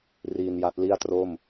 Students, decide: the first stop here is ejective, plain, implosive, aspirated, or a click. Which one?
plain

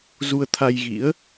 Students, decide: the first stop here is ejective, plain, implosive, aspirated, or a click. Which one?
aspirated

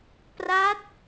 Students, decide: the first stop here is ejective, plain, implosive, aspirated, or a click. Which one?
plain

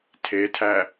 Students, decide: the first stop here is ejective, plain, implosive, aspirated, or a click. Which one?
aspirated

